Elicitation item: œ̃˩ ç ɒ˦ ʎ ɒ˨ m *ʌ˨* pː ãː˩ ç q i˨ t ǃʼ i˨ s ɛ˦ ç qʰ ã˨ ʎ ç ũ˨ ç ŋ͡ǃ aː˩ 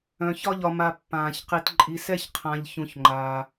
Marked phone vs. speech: incorrect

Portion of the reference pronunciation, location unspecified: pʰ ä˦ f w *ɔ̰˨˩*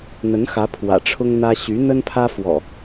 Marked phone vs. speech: correct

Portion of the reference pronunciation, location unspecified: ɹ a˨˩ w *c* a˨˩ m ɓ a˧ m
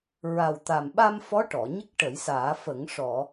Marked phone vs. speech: incorrect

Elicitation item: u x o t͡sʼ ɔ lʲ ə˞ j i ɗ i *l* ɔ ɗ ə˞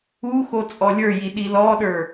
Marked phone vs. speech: correct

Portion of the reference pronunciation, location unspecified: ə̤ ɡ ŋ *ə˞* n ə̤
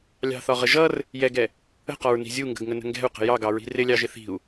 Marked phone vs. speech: incorrect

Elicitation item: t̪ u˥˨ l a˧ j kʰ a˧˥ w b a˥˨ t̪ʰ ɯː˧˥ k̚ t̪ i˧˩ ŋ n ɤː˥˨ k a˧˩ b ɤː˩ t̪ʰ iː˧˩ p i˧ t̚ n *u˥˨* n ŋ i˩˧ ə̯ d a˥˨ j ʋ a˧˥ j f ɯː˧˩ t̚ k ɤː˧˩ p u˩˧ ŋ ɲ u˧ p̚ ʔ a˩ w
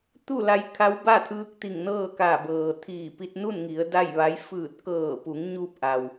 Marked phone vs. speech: correct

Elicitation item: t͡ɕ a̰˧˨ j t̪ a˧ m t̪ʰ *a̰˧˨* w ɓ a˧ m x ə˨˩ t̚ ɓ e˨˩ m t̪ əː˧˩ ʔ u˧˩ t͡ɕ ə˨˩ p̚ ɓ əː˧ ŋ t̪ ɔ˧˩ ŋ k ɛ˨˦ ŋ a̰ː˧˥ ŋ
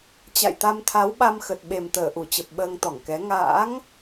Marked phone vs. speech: incorrect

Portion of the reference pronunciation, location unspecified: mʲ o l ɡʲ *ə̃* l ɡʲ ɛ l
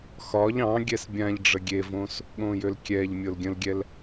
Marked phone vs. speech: correct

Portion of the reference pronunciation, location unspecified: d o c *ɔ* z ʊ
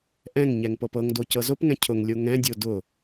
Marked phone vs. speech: incorrect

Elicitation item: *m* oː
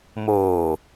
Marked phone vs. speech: correct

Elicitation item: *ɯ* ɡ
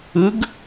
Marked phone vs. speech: correct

